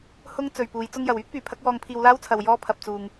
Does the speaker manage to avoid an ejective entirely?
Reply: yes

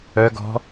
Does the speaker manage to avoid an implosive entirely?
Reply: yes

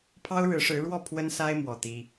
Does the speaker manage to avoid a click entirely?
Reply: yes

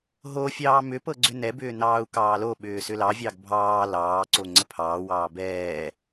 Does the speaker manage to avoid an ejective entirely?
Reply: yes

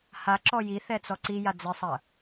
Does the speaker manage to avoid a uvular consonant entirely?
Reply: yes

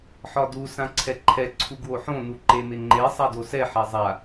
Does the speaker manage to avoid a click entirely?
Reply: no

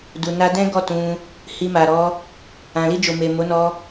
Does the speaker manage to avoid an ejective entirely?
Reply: yes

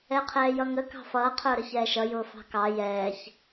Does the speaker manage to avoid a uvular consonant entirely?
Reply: no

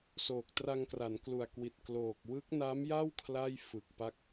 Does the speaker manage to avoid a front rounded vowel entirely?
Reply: yes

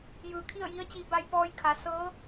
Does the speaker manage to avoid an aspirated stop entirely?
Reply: no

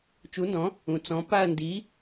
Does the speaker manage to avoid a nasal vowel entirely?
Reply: no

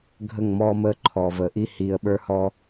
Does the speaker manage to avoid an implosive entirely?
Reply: no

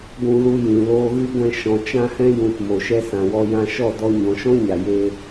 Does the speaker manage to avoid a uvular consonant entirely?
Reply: yes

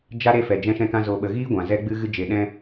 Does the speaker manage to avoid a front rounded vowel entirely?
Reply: yes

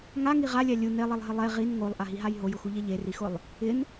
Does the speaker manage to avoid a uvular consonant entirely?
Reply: no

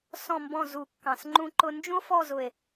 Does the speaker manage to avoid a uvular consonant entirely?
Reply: yes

